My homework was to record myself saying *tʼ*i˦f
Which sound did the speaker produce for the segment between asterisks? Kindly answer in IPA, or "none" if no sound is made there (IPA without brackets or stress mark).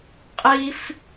qʼ